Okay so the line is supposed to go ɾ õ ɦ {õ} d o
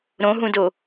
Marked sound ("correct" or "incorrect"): incorrect